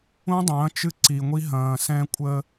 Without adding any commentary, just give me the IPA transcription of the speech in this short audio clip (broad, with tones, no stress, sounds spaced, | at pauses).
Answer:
ũ˦ dˤ ɐ̃ː˨˦ t͡ʃ ɨ˦ ǀ i˨ ŋʷ i˦ ɦ ɐ̃ː˨ s ɛ̃˦ kʷʼ ə˦